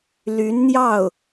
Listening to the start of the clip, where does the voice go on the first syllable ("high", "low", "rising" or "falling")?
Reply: rising